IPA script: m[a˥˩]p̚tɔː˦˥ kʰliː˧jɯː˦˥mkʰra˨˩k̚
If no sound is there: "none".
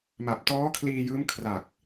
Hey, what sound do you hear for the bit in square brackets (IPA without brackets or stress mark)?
a˨˩